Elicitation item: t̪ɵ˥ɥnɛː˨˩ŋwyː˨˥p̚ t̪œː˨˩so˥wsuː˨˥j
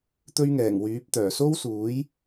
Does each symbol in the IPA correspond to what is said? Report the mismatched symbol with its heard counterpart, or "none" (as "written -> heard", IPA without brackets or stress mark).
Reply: n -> ŋ